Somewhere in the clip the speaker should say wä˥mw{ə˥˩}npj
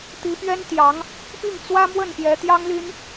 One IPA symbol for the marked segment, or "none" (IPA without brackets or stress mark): ə˥˩